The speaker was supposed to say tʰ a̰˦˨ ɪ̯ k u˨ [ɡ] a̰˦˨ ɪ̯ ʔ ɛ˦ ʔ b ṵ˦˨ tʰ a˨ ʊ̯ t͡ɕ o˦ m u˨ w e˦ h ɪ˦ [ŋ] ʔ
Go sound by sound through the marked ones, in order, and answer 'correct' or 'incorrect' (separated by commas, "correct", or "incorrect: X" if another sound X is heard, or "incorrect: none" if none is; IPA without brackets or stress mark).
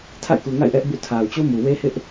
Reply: incorrect: ŋ, incorrect: none